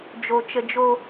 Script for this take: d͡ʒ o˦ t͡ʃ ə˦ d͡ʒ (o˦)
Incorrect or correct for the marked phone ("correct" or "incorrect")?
correct